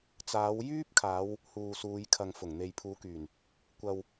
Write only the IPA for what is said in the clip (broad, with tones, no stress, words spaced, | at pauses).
t͡saː˨˧wjyː˥p̚ kʰaː˨˧w | huː˨suː˨˧jkʰɐ˨ŋ fʊ˨˩ŋn̪e˨jpʰuː˨˧kyː˨˩n | kʷɐ˨w